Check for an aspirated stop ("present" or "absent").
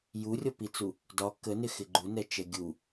absent